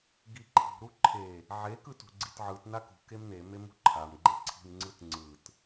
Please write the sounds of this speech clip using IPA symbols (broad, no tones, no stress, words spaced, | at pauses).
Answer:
ɡiǃʰi̤ ɾuǃʰe | ʕe kɯtṳɡ͡ǀitʕɯt nakṳ kemne memṳǃʰam ɡ͡ǃeǀʰi̤m ŋ͡ǀɯtŋ͡ǀɯt